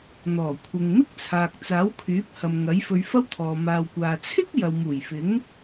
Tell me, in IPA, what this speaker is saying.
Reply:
n̪ ɔː˨˩ kʷʰ ɪ˨ ŋ m ɪ˥ k̚ t͡sʰ aː˨ k̚ t͡s aː˨˥ w kʰ yː˨˥ p̚ h ɐ˨ m ŋ ɐ˨˥ j f ɵ˧ ɥ f ɐ˥ w t̪ʰ ɔː˨ m aː˨ w kʷ aː˨ t͡sʰ ɪ˥ k̚ j ɐ˨ w m uː˨˩ j f ɪ˨˥ ŋ

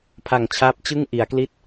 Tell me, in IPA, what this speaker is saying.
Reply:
pʰ a˨˩ ŋ t͡ɕʰ aː˦˥ p̚ t͡ɕ ɯ˥˩ ŋ ʔ i˩˦ a̯ k l i˥˩ t̚

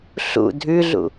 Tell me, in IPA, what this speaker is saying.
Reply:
ɬ ṵ dʱ ʉ ɮ ṵ

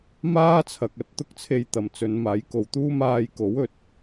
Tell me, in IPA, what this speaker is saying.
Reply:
m aː˥ t͡sʰ ɐ˨ k̚ ɐ˧ t̚ t̪ ʊ˥ k̚ t͡sʰ e˧ j t̪ ɐ˨ m t͡s ɵ˨˧ n m aː˨˥ j k o˨˧ w t̪ uː˥ m aː˧ j k o˨˥ w ɵ˨ t̚

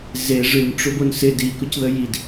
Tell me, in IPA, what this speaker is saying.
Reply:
z e ʐ ɨ n ʈ͡ʂ o b o n s ɪ d i k ʊ c ð ə j i d

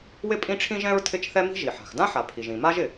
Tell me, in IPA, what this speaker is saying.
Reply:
w ɪ˥ pʼ ĩ˥ ʈ͡ʂʰ ĩ˥ ʒ ɛ̃˥ ɹ tʰ ɪ˥ t͡ʃ θ ɛ˥ m i̤˥ ʒ i˩ ħ a̤˩ x d ã˥ ħ a˩ pʰ i˩ ʒ ĩ˩ m a˥ ʒ ɪ˩

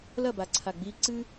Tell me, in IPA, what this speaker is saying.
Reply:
l ɐ˦˨ b a˨ ǀʰ a˨ ɡ͡b iː˧ ǀ ɨː˦

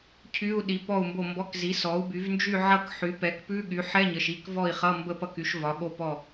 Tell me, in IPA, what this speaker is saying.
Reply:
cʰ y˧˥˧ u̯ ɗ i˩˥ p ɔ˥˩ u̯ m b o˥˩ m b ɔ˧˥˧ k z i˩˥ s ɔ˩˥ u̯ b y˩˥ v n d͡ʒ y˥˧ ʕ ʌ˥˧ k ħ y˩˥ p ɛ˩˥ k p ʉ˧˥˧ ɠ y˩˥ ħ ɛ˧˥˧ ɲ ə˩˧˩ ʃ i˥˩ k v ɔ˥˩ i̯ χ ʌ˧˥˧ m b ə˥˧ p ʌ˥˩ k y˩˥ ʃ v ɒ˩˥ ɠ o˥˩ p ɔ˥˩

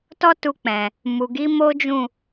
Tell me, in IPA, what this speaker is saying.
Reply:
t ɔ˦ t u˧ k͡p ɛ̃˨ | m u˨ ɡ i˨˦ m o˦ d͡ʒ ũ˦˨

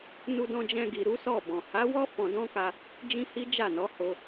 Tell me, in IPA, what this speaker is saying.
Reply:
n u˧ d ɔ̃˧ d͡ʒ ɛ̃˧ ɡ i˨ ɾ u˨˦ s ɔ˦˨ b ɔ̃˨ h a˨˦ w ɔ˦ f ɔ̃˧ d ɔ̃˦ k a˧ | d͡ʒ ĩ˦ h i˦ d͡ʒ a˦˨ n ɔ˨˦ h o˧

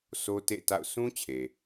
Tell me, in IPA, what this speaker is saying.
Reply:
s o˦ t ḛ˦˨ t a̰˦˨ ʊ̯ s ũ˦ t͡ɕʰ e˨

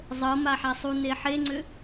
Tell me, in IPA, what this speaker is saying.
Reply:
zˤ ɤ m a ħ a sˤ u n e ħ e ŋ͡ǀ ʏ

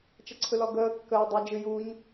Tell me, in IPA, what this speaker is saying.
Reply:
t͡ʃ ʌ ǀʰ ɯ l ɔ ɡ əː kː ə o̯ dˤ i d͡ʒ ɨ j u ɲ

